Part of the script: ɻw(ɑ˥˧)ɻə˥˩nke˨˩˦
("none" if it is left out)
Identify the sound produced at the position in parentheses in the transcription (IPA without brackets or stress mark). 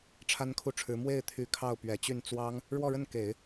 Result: ɔ˥˧